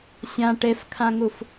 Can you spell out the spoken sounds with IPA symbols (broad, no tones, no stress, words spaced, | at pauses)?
sʲã ʈefkʰãŋuf